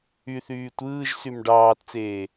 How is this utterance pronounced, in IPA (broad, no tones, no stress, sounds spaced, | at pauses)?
y θ yː tʷ ɯː ʒ s y m ɖ ɑː t t͡s eː